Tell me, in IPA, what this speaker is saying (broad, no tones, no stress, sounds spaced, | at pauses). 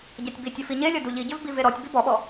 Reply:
ɟ ɛ tʲ b i tʲ ɐ f i ɲ e lʲ ɐ d u ʎ i ɟ ʏ v b i v e ɾ ɔ tʲ b i b ɔ ɓ ɔ